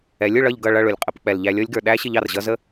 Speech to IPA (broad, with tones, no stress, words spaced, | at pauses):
ɛ˨˦lʲ ʊ˨ɭʌ˦˨ʎɡʌ˦˨ɭʌ˦˨ ɭʊ˨lʲqʼə˧pk͡pɛ˨lʎæ˧ lʲɔ˧lʲɡə˞˨ ɗæ˦ɕɪ˧ʎ ɑ˨rʑʌ˦zə˦